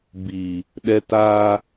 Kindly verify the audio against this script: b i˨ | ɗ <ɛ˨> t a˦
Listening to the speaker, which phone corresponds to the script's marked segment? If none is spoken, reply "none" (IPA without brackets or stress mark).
ɛ˨